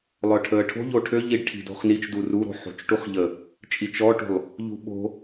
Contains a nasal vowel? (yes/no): no